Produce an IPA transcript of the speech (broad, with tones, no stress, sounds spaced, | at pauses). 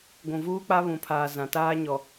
ɡʷ ũ˨ v uː˦ k͡p a˦ β ũ˨ pʰ aː˨ z ã˨ t aː˦ ɲ ɔ˨